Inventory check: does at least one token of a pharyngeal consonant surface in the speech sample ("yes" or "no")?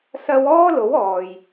no